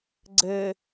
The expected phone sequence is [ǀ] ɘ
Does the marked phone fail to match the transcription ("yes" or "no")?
yes